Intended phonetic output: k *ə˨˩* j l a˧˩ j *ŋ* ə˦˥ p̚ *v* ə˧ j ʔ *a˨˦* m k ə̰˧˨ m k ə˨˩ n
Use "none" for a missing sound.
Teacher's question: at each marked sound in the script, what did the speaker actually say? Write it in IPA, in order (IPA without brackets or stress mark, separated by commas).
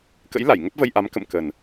ə̰˧˥, ŋ, v, a˨˦